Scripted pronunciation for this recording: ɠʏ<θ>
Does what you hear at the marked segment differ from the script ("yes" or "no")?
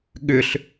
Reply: yes